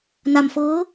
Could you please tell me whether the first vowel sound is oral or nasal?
oral